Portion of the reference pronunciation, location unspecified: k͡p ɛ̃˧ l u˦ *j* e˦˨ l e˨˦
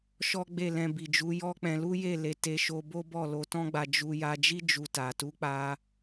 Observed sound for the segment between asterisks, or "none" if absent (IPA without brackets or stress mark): j